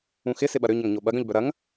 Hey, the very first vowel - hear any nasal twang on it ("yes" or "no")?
yes